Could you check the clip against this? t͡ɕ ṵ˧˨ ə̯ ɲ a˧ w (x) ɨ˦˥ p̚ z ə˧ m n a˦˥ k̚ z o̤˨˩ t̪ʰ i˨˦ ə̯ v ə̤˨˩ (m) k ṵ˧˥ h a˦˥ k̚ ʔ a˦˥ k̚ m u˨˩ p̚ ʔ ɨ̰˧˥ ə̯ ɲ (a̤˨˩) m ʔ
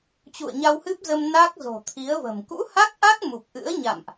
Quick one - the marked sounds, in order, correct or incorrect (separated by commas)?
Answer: incorrect, correct, incorrect